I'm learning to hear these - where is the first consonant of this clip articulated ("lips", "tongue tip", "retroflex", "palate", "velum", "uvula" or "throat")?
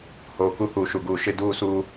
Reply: throat